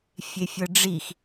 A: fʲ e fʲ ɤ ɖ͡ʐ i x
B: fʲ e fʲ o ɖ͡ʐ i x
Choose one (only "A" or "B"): A